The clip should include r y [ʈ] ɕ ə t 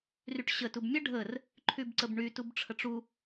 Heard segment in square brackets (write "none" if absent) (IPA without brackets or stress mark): ʈ